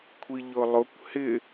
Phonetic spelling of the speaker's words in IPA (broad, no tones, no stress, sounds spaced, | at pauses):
kʷʰ i ʎ ʊ lˠ ʊ kʷ h ɪ